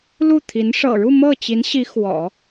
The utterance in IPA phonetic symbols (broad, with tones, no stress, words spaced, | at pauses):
lu˥˩t̪ʰi˧˥n ʂɤ̰˨˩ɻu˥˧ mɤ˥˩t͡ɕi˧˥nɕi˧˥ xwɔ̰˨˩˦